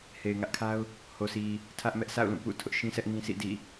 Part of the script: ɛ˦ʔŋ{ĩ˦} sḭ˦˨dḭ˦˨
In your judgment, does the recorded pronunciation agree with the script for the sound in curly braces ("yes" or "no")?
yes